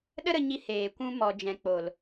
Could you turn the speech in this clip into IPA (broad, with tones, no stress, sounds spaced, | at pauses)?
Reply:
ɗ ə˦ ɾ ə˧ ɲ i˧ h eː˨ kʷ ũ˧ m ɔ˨ d͡ʒ ɛ̃˨ k͡p o˨ l